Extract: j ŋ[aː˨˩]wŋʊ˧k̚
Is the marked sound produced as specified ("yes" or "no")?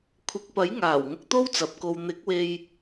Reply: yes